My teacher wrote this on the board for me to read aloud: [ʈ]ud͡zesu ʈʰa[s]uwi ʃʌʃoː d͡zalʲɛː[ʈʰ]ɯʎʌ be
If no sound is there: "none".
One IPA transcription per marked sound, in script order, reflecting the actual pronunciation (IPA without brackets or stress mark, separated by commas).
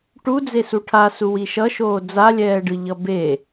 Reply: ʈ, s, ɖ